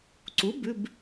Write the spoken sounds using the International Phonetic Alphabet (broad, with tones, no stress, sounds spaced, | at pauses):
ǀ u˩˥ b ʉ˩˧˩ b